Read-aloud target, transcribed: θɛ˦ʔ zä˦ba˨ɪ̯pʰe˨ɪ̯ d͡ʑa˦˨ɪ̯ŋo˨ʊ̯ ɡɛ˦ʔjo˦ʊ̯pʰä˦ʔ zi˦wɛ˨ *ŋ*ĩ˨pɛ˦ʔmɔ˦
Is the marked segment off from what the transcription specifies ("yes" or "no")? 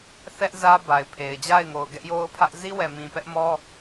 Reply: yes